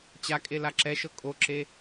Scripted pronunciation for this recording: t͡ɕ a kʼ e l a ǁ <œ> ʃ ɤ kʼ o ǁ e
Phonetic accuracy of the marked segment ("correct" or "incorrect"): incorrect